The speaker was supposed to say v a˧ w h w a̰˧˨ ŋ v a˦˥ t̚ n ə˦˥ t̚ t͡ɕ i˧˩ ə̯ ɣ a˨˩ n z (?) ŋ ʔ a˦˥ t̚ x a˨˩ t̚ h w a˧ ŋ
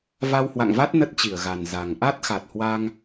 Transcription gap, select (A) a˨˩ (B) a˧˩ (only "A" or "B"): A